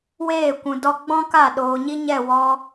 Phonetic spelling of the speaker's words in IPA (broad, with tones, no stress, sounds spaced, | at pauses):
w eː˦˨ kʷ ũ˨ d ɔ˧ ɡ͡b ɔ̃˦ k a˦˨ ɗ oː˨ ɲ i˦ ɲ ɛ˦˨ w ɔ˧